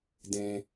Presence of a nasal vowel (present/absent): present